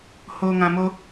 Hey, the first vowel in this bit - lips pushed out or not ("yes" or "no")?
yes